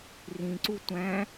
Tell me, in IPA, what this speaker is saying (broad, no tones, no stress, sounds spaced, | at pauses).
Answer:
r ĩ ǀ u tʷ æ̃